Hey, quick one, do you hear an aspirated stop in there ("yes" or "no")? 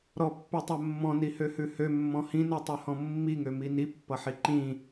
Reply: no